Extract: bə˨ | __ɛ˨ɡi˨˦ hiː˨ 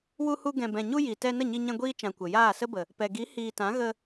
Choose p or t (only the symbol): p